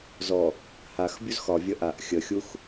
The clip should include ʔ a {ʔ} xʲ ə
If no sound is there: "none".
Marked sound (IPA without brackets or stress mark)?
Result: ʔ